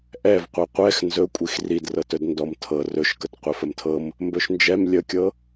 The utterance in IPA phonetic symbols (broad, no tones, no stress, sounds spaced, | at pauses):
ʔ ɛ v qʷ ɤ qʷ ɛ x n z ɵ kʷʼ i x r i d r ɤ t ɵ d n d ɔ m tʰ ɤ r ɵ ʃ k ə t qʷ ɛ f ə m tʰ ɤ m | m b ɵ ʃ n d͡ʒ ɛ m lʲ ə kʲ ɤ